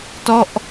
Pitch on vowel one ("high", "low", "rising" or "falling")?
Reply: falling